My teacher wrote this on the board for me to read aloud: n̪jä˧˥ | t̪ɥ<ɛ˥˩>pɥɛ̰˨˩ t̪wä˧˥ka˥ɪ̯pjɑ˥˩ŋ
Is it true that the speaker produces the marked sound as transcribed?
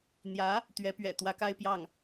no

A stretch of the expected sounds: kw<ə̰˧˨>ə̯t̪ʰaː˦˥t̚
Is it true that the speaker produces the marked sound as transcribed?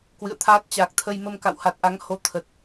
no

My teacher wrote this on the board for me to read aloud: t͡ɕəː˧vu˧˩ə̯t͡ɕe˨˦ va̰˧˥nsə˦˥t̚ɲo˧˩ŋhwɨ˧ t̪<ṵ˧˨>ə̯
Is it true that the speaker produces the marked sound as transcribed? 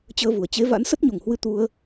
no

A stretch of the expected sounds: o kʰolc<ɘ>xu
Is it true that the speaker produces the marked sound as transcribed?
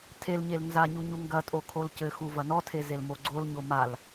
yes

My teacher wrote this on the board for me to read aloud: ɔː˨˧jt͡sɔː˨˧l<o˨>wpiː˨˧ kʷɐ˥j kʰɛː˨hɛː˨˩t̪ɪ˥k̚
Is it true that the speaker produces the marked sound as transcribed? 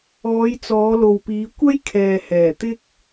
yes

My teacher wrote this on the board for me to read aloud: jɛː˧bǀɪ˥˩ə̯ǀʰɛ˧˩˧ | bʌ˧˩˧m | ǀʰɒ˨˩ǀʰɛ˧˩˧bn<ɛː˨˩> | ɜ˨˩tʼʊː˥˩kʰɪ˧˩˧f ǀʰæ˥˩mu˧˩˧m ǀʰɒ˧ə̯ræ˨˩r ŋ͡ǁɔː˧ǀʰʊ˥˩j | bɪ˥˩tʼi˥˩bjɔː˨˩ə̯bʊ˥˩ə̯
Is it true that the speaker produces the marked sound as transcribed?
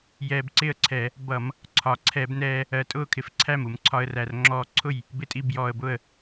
no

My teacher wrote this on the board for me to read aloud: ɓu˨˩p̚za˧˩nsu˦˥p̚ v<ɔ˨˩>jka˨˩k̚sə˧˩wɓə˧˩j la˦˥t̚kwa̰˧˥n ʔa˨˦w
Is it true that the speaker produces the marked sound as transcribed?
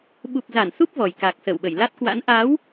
yes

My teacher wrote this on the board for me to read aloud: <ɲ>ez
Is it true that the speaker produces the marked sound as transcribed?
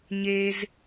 yes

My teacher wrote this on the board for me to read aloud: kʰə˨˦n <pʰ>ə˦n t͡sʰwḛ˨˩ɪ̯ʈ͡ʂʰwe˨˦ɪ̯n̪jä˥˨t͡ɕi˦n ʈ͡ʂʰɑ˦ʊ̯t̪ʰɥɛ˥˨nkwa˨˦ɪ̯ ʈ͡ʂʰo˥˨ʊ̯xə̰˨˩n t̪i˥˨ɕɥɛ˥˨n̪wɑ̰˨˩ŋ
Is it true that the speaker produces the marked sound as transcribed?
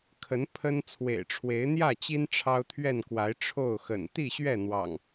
yes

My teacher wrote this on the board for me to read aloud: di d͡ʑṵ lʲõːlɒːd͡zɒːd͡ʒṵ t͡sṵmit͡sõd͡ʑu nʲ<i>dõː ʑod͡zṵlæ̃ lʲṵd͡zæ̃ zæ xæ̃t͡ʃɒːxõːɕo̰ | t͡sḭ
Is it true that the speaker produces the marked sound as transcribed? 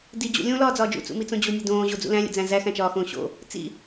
no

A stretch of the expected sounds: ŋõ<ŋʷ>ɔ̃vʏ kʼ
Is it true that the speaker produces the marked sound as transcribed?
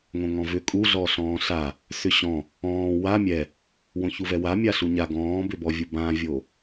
no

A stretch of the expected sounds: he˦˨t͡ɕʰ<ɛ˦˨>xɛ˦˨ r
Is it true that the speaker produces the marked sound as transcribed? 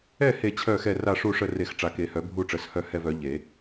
no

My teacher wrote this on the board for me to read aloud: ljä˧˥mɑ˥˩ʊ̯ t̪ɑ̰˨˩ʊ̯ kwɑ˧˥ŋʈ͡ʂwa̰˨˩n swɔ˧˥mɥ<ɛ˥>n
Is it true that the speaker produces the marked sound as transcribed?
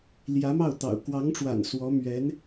no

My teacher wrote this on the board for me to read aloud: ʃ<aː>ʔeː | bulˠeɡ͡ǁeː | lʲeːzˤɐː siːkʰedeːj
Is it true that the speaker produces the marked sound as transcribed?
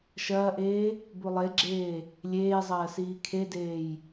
no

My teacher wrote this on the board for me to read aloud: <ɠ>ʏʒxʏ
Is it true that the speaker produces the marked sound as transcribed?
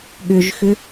yes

